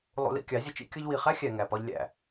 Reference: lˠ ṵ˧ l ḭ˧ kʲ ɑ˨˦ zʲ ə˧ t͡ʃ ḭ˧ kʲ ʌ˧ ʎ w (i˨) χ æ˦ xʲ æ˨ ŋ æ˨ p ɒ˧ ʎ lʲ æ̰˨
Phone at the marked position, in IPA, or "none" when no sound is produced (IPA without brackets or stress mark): i˨